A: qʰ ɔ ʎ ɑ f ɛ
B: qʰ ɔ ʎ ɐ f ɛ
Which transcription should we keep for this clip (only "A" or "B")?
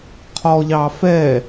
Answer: A